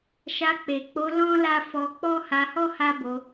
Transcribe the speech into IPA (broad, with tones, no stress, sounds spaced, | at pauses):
ʃ a˧ k͡p e˨ k͡p o˧ l ɔ̃˦ l a˦ f ɔ˧ k͡p ɔ˦ h a˧ h ɔ˦ h a˦ b o˧